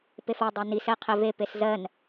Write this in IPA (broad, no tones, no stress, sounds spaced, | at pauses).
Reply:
p e f ɜ dˤ ɜ n i s ɛ qʰ e v e p e s z ɜ n